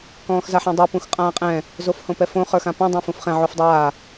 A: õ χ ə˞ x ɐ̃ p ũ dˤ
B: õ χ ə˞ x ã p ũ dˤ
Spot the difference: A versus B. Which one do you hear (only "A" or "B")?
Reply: B